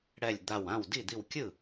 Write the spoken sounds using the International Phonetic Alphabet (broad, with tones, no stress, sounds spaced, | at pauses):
ɽ ɛ˧˩ lʲ d̪ a˧˩ w ã˥˩ w d i˥˩ d̪ i˧˩ w kʲ ɯ˥˩